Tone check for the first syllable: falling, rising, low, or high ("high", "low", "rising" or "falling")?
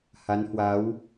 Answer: rising